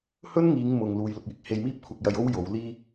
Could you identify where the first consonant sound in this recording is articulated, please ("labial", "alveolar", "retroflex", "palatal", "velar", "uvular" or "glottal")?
glottal